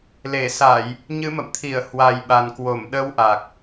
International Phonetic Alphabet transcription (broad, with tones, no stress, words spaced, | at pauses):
le˧˩sa˧˩˨j | ɲɨ˨˦mə̰˧˨mt̪ʰi˧˩ə̯ hwa˨˩jɓa˨˩n kwo˧˩mɗə˧wʔa˨˩k̚